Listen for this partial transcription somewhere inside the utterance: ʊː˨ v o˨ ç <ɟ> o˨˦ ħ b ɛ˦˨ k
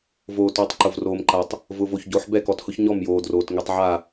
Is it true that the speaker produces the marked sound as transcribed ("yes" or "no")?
yes